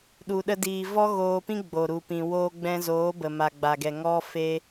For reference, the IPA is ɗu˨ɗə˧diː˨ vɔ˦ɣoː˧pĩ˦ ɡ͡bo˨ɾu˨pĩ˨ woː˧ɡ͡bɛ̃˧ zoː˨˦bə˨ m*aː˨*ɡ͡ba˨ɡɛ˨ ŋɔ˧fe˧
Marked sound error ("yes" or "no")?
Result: yes